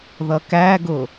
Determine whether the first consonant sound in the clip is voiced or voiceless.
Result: voiced